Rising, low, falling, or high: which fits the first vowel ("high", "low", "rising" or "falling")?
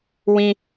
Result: high